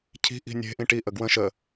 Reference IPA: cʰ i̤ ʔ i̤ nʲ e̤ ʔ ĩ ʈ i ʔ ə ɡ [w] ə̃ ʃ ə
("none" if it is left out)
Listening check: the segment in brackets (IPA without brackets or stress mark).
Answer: w